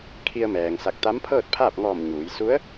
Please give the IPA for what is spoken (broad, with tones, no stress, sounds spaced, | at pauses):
kʰ i˧ ə̯ m ɛː˩ ŋ s a˧˩ k̚ t̪ a˧˥ m pʰ ɤː˥˨ t̚ pʰ aː˥˨ p̚ ŋ ɔː˧˩ m ɲ uː˩˧ j s u˧˥ ə̯